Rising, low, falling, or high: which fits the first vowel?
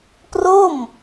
falling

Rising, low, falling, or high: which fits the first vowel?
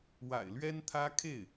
low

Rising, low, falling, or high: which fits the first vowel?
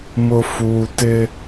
low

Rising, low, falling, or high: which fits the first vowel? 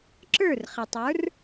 falling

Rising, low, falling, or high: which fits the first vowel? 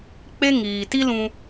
high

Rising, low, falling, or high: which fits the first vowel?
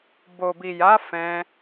low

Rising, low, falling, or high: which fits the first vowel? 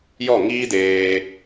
falling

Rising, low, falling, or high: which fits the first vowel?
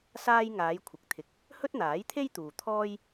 high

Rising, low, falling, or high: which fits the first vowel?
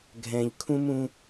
low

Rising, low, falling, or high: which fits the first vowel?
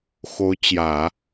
rising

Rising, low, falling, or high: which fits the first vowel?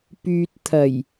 low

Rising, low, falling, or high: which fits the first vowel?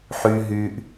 high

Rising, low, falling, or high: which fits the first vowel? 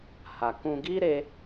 low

